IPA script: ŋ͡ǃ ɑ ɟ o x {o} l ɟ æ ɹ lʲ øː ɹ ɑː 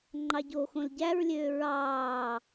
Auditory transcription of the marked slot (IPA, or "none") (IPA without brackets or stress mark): õ